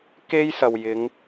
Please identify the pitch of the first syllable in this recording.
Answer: high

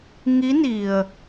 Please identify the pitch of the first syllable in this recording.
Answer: rising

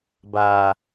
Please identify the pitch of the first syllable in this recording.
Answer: low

